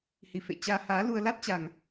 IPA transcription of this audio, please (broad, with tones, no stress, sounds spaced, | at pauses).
h i˨˩ f ḛ˧˨ t͡ɕ aː˧ h aː˨˦ l u˧ ə̯ l a˦˥ t̚ t͡ɕ a˨˩ ŋ